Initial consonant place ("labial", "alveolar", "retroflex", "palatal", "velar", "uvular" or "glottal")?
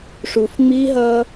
retroflex